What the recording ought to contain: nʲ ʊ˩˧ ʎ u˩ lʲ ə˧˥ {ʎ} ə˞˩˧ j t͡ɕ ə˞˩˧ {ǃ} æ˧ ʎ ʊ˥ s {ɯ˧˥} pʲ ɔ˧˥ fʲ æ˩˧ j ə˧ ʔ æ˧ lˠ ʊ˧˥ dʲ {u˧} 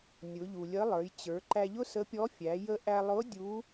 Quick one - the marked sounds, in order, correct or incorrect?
incorrect: lˠ, correct, incorrect: ə˧˥, incorrect: u˧˥

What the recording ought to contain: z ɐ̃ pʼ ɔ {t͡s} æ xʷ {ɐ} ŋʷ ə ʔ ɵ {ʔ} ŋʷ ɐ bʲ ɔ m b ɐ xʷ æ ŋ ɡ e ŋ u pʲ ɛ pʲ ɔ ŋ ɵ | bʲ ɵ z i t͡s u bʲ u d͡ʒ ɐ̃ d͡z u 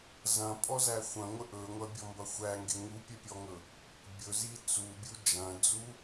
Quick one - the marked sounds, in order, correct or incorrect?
incorrect: z, incorrect: ɐ̃, incorrect: none

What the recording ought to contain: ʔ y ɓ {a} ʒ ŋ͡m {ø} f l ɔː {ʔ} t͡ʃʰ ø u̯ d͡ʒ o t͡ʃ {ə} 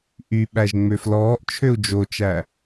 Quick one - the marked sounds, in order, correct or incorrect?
incorrect: æ, correct, correct, incorrect: æ

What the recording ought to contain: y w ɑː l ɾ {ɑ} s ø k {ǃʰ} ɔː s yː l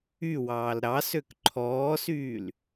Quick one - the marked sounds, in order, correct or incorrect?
correct, correct

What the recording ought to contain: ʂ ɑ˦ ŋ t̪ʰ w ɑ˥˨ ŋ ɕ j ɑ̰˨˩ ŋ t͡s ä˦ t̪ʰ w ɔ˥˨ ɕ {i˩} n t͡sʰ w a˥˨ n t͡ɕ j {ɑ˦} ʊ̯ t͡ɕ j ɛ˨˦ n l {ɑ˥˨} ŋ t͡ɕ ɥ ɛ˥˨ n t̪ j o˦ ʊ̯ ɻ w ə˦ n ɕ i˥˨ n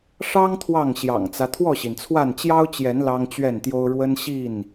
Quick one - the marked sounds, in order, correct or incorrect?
correct, correct, incorrect: ɑ˦

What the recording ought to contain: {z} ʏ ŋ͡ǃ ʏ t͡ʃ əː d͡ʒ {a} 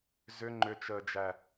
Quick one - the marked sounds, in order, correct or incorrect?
correct, incorrect: æ

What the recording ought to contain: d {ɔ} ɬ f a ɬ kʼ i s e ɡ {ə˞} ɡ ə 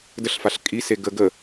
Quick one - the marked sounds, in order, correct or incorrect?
incorrect: ə, incorrect: ə

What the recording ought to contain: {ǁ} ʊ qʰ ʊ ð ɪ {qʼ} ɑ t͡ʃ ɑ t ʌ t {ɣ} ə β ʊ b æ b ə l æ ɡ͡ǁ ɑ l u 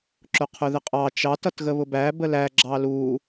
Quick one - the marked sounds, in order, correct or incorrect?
correct, correct, correct

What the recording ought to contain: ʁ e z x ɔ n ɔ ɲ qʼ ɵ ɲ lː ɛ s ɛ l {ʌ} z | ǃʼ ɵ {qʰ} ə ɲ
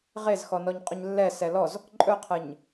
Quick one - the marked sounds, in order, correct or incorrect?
incorrect: ɔ, correct

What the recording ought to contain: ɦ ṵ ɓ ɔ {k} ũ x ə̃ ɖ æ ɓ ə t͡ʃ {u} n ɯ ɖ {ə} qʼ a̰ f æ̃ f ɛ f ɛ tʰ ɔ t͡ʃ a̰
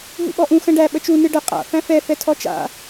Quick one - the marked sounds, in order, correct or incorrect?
incorrect: ʔ, correct, correct

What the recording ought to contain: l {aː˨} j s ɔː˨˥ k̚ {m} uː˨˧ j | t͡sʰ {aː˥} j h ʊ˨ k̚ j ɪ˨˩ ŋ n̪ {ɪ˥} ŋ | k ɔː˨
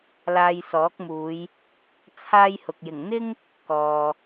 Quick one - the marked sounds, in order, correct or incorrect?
incorrect: aː˧, correct, correct, correct

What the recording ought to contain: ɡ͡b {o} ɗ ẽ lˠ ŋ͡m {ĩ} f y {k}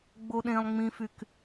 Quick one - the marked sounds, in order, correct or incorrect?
correct, correct, correct

